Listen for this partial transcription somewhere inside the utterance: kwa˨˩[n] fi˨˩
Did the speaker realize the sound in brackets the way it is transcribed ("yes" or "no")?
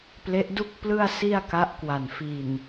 yes